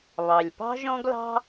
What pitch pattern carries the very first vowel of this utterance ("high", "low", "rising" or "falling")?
low